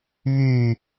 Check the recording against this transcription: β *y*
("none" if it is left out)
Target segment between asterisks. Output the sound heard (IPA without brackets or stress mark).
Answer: y